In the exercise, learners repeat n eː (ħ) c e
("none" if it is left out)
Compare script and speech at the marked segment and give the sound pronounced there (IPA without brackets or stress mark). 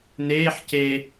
ħ